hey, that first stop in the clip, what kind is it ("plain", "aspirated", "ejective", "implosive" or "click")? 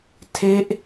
aspirated